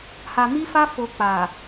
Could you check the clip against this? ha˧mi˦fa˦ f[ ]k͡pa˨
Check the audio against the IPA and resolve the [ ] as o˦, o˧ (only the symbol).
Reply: o˧